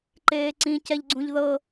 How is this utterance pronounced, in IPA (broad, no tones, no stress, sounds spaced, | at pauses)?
ǃ eː ǀ ĩ c ɛ ʎ ɡ͡ǀ ũ ʎ ð ɤ